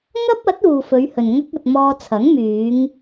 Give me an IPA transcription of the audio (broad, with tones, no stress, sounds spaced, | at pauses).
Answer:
ŋ ɐ˥ p̚ ɐ˨˥ t̚ uː˨ f ɵ˨˧ ɥ h ɵ˨ n ŋ ɐ˥ k̚ ɐ˧ t̚ m ɔː˧ t͡sʰ ɐ˨˥ ŋ m yː˨˧ ŋ